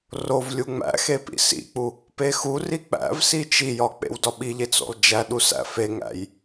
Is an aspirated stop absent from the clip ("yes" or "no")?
yes